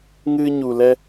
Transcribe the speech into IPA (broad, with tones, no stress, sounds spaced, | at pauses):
ŋ ɨ˧ ɲ u˨ l ɛ˧